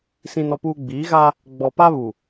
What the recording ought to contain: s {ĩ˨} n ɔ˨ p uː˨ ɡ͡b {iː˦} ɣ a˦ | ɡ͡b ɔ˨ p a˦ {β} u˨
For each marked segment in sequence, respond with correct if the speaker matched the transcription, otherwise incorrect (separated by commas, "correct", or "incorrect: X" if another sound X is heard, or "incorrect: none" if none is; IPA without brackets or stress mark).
correct, incorrect: iː˨˦, correct